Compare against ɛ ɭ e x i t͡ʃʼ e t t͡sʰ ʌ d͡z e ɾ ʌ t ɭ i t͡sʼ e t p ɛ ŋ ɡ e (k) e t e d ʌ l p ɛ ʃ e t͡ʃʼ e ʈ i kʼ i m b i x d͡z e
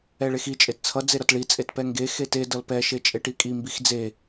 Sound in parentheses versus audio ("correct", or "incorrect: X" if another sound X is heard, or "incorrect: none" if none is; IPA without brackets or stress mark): incorrect: x